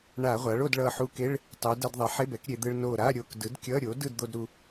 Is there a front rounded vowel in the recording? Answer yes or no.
no